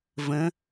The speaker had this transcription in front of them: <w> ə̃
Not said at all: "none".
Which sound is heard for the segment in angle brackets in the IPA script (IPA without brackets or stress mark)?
v